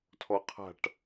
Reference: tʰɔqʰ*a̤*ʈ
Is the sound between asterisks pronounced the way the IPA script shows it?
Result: yes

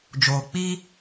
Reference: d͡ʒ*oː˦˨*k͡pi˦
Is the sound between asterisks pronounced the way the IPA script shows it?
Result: no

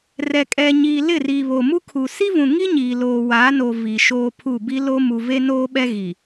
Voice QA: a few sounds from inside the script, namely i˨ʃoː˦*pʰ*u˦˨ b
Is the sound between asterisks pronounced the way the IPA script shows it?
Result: yes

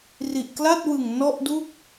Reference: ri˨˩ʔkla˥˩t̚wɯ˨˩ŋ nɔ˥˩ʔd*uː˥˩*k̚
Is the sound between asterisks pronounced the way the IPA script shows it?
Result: no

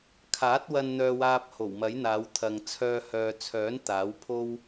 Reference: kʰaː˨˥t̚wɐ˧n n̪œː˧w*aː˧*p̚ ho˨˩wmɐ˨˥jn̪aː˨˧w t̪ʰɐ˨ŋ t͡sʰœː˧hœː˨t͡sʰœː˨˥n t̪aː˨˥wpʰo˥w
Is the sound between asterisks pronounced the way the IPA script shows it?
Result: yes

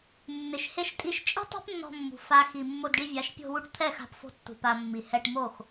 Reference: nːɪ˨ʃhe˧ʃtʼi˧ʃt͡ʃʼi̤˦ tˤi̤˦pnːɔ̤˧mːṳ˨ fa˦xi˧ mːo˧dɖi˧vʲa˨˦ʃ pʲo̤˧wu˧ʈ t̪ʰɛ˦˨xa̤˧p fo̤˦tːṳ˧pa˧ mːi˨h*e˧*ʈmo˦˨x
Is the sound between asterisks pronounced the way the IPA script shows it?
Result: no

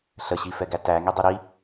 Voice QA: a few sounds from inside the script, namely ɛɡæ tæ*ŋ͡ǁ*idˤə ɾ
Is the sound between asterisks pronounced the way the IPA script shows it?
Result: no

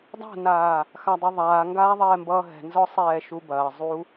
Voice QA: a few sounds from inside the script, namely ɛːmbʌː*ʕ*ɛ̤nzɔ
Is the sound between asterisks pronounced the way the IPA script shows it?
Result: no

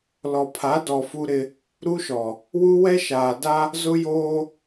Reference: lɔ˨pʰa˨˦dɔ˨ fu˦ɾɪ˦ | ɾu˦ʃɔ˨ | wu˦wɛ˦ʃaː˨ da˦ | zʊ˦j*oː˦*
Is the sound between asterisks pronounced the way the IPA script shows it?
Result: yes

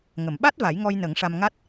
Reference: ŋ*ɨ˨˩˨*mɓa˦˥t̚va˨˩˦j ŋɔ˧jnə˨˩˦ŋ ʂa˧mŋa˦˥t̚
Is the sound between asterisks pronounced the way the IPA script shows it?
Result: no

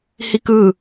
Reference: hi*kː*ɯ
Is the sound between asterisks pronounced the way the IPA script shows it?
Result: no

